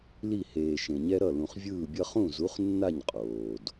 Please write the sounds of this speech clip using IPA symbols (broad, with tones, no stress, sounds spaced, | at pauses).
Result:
l i˦˨ h eː˨ ʃ ẽ˨ ɲ ɛ˦ ɾ ʌ˦˨ l ũ˨ χ vʲ ɯː˦˨ bʲ ʌ˦ χ ũ˦˨ z u˨˦ χ nː a˦˨ ɲ qʼ oː˨ d